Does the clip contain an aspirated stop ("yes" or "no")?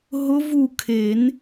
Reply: yes